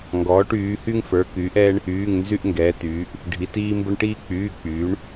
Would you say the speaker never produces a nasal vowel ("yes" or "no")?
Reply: yes